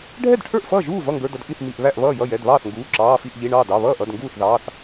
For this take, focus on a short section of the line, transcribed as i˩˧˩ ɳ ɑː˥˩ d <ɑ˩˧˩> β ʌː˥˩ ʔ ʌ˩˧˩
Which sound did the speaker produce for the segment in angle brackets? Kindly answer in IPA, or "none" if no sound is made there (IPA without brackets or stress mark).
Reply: ɑ˩˧˩